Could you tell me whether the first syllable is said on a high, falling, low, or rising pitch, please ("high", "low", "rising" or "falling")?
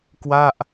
falling